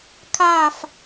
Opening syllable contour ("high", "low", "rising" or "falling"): falling